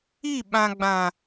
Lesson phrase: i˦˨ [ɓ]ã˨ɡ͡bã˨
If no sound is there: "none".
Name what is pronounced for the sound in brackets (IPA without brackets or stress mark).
ɓ